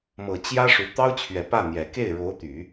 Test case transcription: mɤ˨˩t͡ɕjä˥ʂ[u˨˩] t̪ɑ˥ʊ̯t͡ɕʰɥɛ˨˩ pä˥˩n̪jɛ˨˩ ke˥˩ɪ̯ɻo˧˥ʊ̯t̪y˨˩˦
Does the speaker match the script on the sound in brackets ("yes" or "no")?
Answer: yes